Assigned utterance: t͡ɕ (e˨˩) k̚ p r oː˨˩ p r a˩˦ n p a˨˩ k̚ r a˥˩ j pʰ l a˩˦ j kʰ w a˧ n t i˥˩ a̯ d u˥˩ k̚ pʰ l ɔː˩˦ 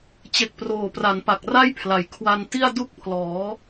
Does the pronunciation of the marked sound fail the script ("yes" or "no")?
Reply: no